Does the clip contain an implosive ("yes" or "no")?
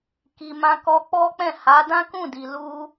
no